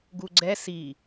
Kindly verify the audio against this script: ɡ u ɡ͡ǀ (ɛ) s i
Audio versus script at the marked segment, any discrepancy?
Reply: no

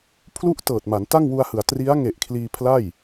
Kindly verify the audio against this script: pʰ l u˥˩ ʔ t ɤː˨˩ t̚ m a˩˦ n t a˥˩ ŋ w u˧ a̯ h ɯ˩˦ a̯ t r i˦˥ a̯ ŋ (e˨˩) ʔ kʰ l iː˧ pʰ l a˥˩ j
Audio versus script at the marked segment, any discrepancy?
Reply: no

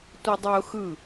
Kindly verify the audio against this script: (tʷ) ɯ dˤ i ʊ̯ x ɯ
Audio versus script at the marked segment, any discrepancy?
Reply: no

